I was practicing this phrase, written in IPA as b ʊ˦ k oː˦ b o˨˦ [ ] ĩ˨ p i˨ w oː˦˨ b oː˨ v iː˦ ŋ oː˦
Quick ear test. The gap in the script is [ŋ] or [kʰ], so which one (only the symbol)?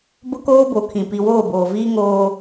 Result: kʰ